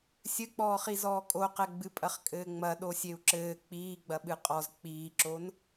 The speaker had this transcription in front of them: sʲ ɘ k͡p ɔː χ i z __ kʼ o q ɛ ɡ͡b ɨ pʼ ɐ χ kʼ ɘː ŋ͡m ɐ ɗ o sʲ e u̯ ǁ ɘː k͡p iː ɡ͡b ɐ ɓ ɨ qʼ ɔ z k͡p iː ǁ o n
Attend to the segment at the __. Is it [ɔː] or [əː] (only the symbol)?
ɔː